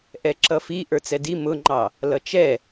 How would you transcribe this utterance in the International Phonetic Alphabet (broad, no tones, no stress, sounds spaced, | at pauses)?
ʔ ɛ ǁ ʌ f i ʔ ə˞ t͡s ɛ d i m ʊ ŋ͡ǃ ɑ | l ʌ t͡ʃ ɛ